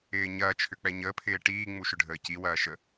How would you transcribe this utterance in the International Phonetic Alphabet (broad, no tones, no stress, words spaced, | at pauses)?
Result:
ɪːɲɐː t͡ʃʰʏk͡pɛɲəː pʰɪːʈiː ŋ͡muʃʏɖʱəːci wɐːʃə